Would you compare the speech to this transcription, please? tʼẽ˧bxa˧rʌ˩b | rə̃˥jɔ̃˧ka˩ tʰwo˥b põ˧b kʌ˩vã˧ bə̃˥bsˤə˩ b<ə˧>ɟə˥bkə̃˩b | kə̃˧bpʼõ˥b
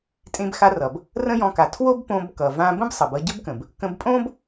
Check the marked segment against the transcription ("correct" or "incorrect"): incorrect